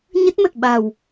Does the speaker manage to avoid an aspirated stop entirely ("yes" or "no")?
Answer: yes